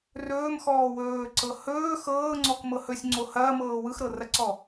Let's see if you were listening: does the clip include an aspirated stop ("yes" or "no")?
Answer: no